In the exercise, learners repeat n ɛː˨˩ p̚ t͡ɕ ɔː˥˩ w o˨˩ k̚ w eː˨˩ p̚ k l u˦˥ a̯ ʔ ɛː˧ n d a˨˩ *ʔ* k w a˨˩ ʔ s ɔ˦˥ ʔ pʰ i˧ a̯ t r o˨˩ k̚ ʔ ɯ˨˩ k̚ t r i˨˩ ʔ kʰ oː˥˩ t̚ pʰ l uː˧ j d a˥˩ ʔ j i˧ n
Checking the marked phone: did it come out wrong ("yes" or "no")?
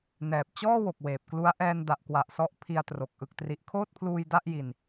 no